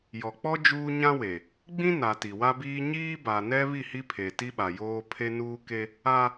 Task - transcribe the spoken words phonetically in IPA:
jɔ˨k͡pɔ˦ d͡ʒuː˦ɲã˦we˨ | ɡ͡bĩ˦na˨ ti˨wa˦biː˦ ɲiː˦ba˨nɛ˦ βi˦˨hi˦pʰe˨ ti˦ɓa˨ joː˦ pʰe˦nuː˦ke˦ | a˦

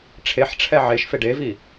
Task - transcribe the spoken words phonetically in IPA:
ʈ͡ʂʰeħʈ͡ʂʰɛ ʕeʃfe ɖevi

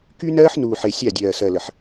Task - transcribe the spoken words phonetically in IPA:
ky˦ nɜː˦ħnuː˨ħe˨ sʲa˦˨dʲɜː˨sɜ˨ lə˨ħ

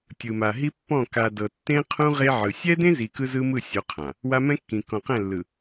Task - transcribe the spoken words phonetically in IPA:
tʲɯ˨ma˨ ɦi˦pːɔ̃˦˨ ka˨ dɤ˨tːẽ˦qʰũ˦ ʁe˦ ʕɯ˨ sʲɛ˦dẽ˦zi˨ kɯ˦zɯ˦mɯ˦˨sʲo˨˦ qʰã˨ | wa˦ mɛ̃˦kːĩ˨ kɔ̃˨qɛ̃˦˨lːɯ˨

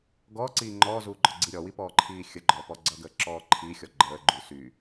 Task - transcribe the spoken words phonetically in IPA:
ɡɔːǀiː ŋ͡ǃɔːzuːɡ͡ǃɔɡ͡ǀi ɾʲɔwipɔːǃʰiː xʲəɡ͡ǃɔːpɔ ɡ͡ǀʌɡəːǁɔː ǃʰixʲɔ ɡ͡ǃəːɡ͡ǃy sy

